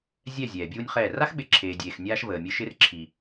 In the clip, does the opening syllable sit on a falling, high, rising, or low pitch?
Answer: falling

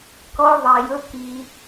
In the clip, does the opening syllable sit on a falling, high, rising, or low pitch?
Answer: high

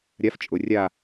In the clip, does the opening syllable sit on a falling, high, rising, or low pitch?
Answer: rising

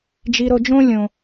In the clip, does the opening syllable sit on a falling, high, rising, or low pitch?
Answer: low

